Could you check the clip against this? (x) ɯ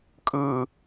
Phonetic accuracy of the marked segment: incorrect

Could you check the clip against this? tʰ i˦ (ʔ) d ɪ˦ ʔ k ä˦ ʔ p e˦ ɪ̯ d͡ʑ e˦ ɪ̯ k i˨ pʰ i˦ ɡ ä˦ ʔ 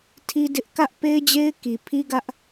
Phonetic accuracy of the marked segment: incorrect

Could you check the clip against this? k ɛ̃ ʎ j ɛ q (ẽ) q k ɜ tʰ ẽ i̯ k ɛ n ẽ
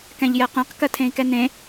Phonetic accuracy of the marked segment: correct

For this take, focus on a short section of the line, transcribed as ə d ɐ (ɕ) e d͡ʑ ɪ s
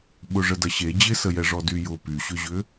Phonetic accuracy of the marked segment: correct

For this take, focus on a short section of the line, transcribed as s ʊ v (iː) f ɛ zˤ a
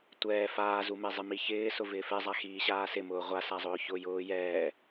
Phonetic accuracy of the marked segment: incorrect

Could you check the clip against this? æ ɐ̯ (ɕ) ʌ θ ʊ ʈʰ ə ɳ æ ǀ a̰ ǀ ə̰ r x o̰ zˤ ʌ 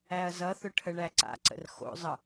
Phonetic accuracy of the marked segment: incorrect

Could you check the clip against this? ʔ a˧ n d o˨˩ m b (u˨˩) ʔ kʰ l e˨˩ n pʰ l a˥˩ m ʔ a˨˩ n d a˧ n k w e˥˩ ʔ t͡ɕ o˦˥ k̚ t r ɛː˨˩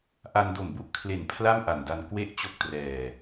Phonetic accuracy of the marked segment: incorrect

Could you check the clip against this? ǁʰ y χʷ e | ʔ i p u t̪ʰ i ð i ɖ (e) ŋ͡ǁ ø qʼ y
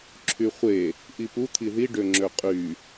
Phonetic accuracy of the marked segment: incorrect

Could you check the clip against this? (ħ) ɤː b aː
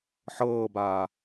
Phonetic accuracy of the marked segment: correct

